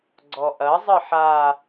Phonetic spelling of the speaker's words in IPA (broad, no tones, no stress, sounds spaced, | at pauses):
ɡ͡ǀ ɔ ʔ ɐ zˤ ɘ ħ a